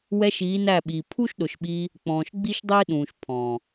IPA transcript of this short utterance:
w ɛ˧ ʃ iː˨˦ n æ˦˨ ɓ iː˨ pʰ u˦ ʃ ɗ ʊ˨ ʃ ɓ iː˧ | k͡p ɔ̃ː˨ ʃ ɡ͡b i˦ ʃ dˤ ɪː˦ ɗ ũː˨ ʃ pʰ ɔ̃ː˨

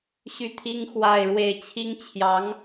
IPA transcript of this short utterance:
ɕ y˥˩ t̪ʰ i˥ ŋ x w a˥˧ ɪ̯ ɻ w e˥˩ ɪ̯ t͡ɕʰ i˥ ŋ t͡ɕʰ j ɑ˧˥ ŋ

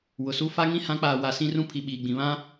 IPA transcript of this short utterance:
w ʊ˨ s u˦ f a˦ ŋ ĩ˦ h ã˨˦ k͡p aː˨ w a˨ s ĩ˦ r ũ˦ pʰ i˨ ɓ iː˨ ɡ͡b ĩ˨ β ã˦

